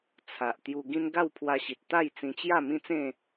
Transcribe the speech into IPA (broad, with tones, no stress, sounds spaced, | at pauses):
t͡sʰ a˨ ʔ t̪ j u˧ ɡ ĩ˦ n ɡ a˥˧ w pʰ w a˧ ɕ i˨ t̚ t̪ a˥˧ j t͡s ĩ˧ t͡ɕ j a˥˧ m ĩ˦ t͡s ẽ˥˧